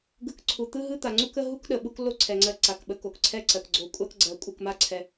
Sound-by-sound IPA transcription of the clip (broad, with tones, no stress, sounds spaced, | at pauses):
ɡ ɯ˨ k ǀʰ u˩ t̪ ɯ˥ ɦ ɯ˥ t̪ a˩ ŋ͡ǀ u˦ k ə˦ ɦ u˥ k ɗ ə˩ ɓ u˦ k l o˦ ǀʰ ɛ˩ ŋ͡ǀ ɜ˨ ǀ a˩ k ɓ ə˨ k o˩ k ǀʰ ɛ˦ ǀ ɜ˩ k ɡ͡ǀ o˨ kʷʼ a˦ k ɡ͡ǀ ɜ˨ kʷʼ ɯ˨ k m a˦ ǀʰ ɛ˨